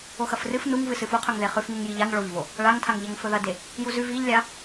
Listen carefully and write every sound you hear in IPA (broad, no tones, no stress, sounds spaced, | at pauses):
o x ɐ f r ɨ f n u ŋ v ɨ s ɨ f u qʰ ɵ ŋ ð e χ ʉ f ŋ u ŋ j i ʎ a ŋ ɭ o ʎ v o | ɭ a ŋ tʰ a ŋ ʎ ɐ ŋ f ɵ ð ɐ d e | j u z ʉ v i ʎ lʲ a